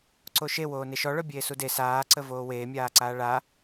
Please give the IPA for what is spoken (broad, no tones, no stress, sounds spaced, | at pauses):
ǀ o ʃ e w oː n e ʃ ɔ ɭ œ bʲ eː s u d e s aː ǀ ə v oː w eː mʲ aː ǀ aː ɭ a